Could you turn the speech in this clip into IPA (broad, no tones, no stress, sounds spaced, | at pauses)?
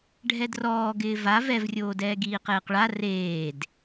ɖʱ ɛ d r ɔː ɡ ɪː v a v ɛ v rʲ oː d ɛː ɡ iː q eː q ɭ a r eː d